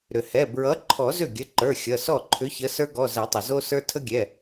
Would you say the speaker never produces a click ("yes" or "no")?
no